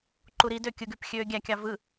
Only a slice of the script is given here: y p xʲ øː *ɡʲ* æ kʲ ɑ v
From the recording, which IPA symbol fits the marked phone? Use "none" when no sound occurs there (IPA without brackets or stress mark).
ɡʲ